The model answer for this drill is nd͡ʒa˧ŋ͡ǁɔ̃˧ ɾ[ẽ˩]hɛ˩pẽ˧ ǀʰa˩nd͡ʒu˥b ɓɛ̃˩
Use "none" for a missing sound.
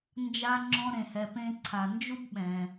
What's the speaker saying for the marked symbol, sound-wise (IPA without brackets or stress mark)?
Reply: ẽ˩